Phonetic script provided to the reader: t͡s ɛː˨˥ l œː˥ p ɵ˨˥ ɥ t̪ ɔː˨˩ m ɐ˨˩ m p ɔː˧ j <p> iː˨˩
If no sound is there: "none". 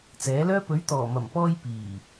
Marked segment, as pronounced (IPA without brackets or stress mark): p